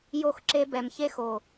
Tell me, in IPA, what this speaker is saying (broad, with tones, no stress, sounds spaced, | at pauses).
j o˦˨ x ǁ e˦ b ɛ˨ m ç e˦ x o˨